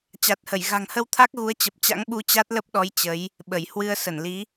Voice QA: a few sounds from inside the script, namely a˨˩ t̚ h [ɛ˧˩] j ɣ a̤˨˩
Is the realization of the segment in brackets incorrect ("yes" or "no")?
yes